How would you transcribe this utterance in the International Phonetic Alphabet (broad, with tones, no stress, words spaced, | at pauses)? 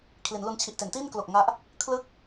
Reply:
kʰli˩˦nlu˧n t͡ɕʰi˨˩ʔte˩˦ntiː˥˩nklo˨˩k̚ ŋa˦˥ʔ | kʰlɯ˦˥k̚